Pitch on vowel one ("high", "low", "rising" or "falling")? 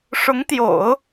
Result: rising